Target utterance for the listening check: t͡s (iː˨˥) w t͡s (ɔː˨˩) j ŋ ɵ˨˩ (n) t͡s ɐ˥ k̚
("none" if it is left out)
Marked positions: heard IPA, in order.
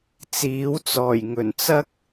iː˨˥, ɔː˨˩, n

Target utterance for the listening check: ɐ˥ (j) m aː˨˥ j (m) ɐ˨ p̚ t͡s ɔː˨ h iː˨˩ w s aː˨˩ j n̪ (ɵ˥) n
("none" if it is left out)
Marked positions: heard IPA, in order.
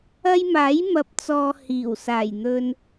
j, m, ɵ˧

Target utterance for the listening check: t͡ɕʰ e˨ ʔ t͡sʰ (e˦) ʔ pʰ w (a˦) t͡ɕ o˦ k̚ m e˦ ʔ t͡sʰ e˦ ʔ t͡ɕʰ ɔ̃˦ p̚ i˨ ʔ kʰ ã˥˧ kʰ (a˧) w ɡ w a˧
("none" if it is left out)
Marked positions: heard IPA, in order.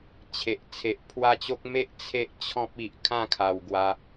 e˨, a˦, a˨˩

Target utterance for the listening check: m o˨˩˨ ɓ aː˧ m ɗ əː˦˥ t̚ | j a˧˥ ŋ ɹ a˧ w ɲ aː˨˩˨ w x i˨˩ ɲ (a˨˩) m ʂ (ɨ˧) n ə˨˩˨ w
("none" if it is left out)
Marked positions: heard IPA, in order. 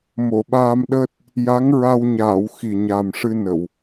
a˨˩, ɨ˧

